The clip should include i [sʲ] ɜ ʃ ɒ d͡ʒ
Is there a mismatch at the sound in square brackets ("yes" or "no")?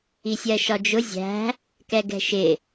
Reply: no